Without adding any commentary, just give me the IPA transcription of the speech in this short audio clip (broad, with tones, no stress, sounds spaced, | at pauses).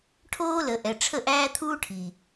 ʈʰ oː˦ l ə˨ ʔ ɛ˨ ʈ͡ʂʰ ə˦˨ ʔ æː˦ t̪ʰ uː˦ ʈʰ i˨